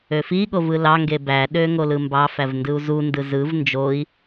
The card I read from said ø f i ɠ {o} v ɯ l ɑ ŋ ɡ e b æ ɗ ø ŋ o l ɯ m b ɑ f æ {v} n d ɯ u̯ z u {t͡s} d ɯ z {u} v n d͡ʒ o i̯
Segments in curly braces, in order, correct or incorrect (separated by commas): correct, correct, incorrect, incorrect